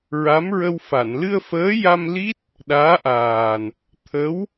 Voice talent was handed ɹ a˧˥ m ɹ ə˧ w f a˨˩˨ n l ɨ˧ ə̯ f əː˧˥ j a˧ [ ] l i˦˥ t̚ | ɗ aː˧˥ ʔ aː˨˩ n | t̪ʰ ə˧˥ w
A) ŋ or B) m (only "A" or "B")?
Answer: B